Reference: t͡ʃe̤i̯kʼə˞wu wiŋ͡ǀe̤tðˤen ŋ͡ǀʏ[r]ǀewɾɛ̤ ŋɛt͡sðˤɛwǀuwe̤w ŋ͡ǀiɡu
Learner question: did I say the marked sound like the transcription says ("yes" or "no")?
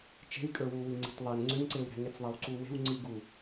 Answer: no